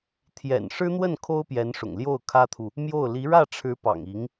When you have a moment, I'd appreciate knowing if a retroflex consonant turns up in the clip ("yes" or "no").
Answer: yes